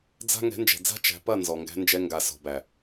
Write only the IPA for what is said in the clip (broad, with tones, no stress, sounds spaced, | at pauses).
d͡z a̤˦ ŋ ɛ̤˨˦ n d͡ʒ ɛ̤˨ d͡z a̤˦ t͡ʃ æ̤˨ p ɐ˦˨ n z ɔ˨ ŋ ɡ æ̤˧ n d͡ʒ ɛ˧ ŋ ɡ a˨ s ɔ̤˨ b æ˨